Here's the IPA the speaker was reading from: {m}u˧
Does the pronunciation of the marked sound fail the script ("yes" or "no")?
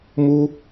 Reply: no